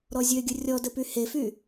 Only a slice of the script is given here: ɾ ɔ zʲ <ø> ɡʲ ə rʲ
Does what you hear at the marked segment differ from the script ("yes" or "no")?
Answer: no